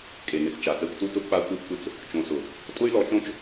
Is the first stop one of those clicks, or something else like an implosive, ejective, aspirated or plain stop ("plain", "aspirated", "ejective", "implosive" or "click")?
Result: ejective